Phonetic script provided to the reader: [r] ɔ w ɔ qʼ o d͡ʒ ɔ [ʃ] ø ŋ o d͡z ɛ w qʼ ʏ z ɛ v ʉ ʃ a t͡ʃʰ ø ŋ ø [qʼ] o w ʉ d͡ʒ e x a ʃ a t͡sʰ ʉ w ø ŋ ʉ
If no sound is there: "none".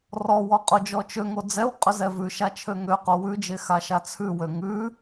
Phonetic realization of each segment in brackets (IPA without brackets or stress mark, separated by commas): r, t͡ʃ, q